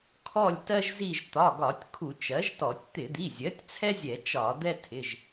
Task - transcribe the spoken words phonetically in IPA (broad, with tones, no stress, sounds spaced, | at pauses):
kʰ ɔ˦˨ lʲ t ɜ˦ ʒ z i˦˨ ʒ t̪ ɒ˩˧˩ ɡ ɒ˧˩˧ tʲ kʰ u˧˩˧ t͡ʃ ɜ˩˥ ʒ t ɔ˧˩˧ tʲ t̪ ɪ˧˩˧ d̪ i˩˧˩ zʲ ɜ˩˥ tʲ t͡sʰ ɛ˦ zʲ ɛ˧˩˧ t͡ʃ ɒ˧˩˧ d̪ ɛ˦ tʰ ɪ˩˧˩ ʒ